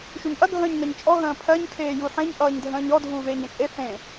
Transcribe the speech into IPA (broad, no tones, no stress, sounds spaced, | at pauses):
ʃ u ɲ ʔ ɐ ɡʱ ə̃ː ɲ n ʌ ɲ t͡ʃʼ ɔ ɦ ə̃ː pʰ ɜ ɲ kʰ eː j u ħ ẽ ɲ ʔ ʌː ɲ dʱ ə̃ː ɲ ɔ dʱ uː v eː ɲ ɐ̃ t͡ʃʼ e θ ẽ